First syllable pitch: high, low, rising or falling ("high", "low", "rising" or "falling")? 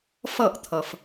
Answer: falling